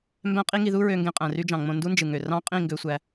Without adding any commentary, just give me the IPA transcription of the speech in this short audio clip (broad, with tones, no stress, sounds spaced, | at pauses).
m b æ̃˦ qʼ i˦ ŋ i˧ ð u˦ ɹ ø˧ ŋ ɡ ẽ˧ qʼ æ̃˨ r y˦ d͡ʒ ɑ̃˨ ŋ͡m õ˧ n d u˦ n d͡ʒ ɯ˨ ŋ ø˨ r ɑ̃˦ qʼ ĩ˦˨ ŋ ɡ ø˧ sʷ æ˧